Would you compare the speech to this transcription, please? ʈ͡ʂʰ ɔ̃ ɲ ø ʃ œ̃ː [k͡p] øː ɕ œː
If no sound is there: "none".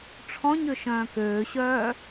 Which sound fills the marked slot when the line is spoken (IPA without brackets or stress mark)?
k